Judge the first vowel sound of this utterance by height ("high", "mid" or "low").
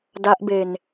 low